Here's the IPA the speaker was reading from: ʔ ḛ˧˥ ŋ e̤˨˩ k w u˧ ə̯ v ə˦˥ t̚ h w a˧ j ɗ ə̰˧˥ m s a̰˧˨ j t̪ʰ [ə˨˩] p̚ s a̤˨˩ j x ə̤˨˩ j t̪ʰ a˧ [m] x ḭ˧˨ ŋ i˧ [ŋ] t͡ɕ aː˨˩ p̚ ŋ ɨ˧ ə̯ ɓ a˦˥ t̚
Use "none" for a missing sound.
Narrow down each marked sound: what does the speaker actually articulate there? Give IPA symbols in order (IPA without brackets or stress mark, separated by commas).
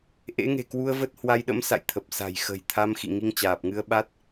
ə˨˩, m, ŋ